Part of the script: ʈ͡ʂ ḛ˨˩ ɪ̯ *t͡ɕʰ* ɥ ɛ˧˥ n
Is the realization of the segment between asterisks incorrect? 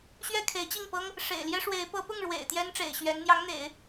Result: yes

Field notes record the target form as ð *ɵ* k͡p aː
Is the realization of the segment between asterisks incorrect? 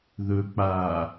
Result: no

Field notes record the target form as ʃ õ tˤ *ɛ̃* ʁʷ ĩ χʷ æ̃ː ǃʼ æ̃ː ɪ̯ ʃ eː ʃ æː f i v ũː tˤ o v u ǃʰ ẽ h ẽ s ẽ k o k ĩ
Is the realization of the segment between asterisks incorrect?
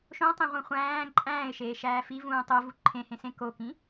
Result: yes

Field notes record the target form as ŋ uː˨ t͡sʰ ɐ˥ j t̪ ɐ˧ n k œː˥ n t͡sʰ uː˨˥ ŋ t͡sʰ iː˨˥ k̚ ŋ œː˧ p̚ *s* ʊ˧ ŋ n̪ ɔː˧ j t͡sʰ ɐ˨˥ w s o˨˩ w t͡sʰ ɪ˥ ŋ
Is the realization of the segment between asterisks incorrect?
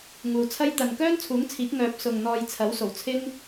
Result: no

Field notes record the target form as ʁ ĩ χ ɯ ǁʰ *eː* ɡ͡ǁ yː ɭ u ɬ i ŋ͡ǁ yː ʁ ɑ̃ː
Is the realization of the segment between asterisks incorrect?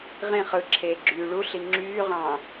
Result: no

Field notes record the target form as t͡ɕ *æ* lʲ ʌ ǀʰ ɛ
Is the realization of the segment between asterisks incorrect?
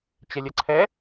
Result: yes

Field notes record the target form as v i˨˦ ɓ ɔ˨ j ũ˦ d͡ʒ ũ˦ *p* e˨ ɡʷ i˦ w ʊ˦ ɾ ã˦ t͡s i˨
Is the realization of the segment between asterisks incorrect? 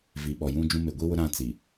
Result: yes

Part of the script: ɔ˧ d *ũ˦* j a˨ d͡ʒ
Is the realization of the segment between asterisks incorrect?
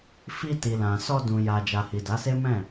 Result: yes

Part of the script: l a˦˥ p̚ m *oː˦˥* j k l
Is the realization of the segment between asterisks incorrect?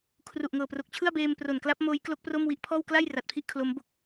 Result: no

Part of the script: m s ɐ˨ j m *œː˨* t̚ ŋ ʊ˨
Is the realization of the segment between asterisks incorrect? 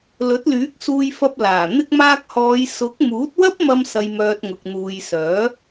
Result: no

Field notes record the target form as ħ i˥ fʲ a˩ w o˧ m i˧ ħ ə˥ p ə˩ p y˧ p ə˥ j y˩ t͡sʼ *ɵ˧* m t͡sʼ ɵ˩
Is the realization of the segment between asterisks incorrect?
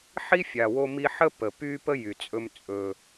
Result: no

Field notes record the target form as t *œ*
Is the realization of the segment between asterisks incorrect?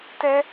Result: yes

